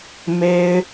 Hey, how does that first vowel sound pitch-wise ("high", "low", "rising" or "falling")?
high